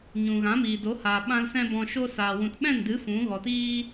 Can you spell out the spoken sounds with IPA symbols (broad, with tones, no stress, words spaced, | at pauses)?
ɲũ˨ɣã˨˦miː˨do˨˦ haː˨ɓã˧l sɛ̃˦bɔ̃˧ʃo˦ saː˨ wũ˨tɓɛ̃˦˨ndɨ˨˦ fũ˨˦ ɣɔ˨tiː˦